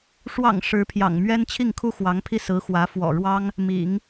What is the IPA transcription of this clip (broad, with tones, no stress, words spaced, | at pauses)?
ʂwɑ̰˨˩ŋ ʂɻ̩˧˥pʰjɑ̰˨˩ŋmɥɛ˥n t͡ɕʰi˥˩ŋkʰu˥xwɑ˧˥ŋpʰi˥˩ sɹ̩˧˥xwä˧˥ fwɔ̰˨˩ɻwɑ˥ŋ | mḭ˨˩˦ŋ